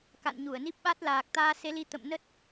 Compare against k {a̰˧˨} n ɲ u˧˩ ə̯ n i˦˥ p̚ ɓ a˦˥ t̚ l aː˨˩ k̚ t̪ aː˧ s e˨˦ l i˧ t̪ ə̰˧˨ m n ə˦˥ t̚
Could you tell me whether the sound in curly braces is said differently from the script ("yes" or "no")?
no